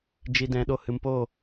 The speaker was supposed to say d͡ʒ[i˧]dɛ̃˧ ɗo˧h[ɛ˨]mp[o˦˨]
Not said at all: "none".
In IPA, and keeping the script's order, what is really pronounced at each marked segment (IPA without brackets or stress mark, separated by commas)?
i˧, ɨ˨, o˦˨